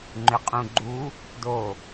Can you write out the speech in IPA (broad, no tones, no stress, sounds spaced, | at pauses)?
ŋ͡ǃ ʏ qʼ ũ ɡ͡ǃ u | d o